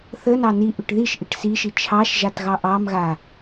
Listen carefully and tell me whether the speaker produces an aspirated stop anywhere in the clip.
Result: yes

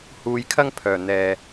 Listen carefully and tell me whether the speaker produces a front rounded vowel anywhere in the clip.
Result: yes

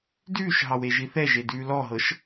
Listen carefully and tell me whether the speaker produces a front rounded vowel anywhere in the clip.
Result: no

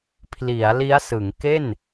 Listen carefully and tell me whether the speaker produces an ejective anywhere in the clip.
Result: no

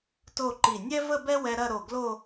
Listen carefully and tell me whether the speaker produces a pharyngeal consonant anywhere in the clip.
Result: no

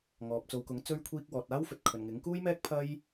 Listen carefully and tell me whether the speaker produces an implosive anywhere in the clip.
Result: no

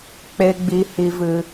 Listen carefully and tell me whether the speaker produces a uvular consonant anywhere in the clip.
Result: no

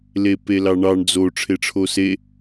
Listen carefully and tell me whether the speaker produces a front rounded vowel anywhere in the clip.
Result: no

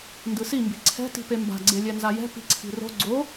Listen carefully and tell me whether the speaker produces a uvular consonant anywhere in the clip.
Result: no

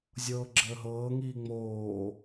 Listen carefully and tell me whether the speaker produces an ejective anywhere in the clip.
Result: no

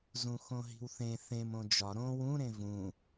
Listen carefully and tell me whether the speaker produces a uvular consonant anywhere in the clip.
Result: no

